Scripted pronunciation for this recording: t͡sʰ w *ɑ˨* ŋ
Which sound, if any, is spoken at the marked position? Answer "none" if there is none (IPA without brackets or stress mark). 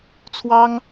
ɑ˦